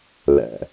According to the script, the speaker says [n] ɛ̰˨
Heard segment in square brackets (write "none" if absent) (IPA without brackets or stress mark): l